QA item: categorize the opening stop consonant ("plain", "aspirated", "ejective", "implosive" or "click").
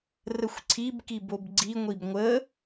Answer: click